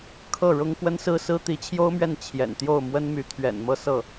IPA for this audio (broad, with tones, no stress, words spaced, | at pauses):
kʰɤ˥˩ ɻʊ˥ŋkwə˥nsɹ̩˥sɹ̩˥ t̪i˧˥t͡ɕʰjo˥ʊ̯mɥɛ˥˩n t͡ɕʰjɛ̰˨˩n t̪jo˥˩ʊ̯mwə˥nmy˧˥ t̪ʰɥɛ̰˨˩nmɤ˥˧sɤ˥˩